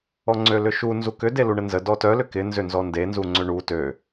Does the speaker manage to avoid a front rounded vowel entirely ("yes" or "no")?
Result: no